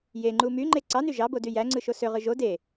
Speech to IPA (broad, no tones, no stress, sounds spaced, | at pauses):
j e ŋ͡ǃ u m y ŋ͡ǃ e ǀ ɑ n y ʒ ɑ b o d y j æ ŋ͡ǀ ɯ ʃ o s ø ʁ ɯ ʒ o d e